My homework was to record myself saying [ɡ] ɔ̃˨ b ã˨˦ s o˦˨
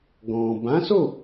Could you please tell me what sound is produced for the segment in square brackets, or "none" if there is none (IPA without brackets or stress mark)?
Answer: ɡ